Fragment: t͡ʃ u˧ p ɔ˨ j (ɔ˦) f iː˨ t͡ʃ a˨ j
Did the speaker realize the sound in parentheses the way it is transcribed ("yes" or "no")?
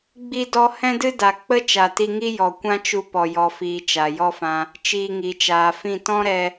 no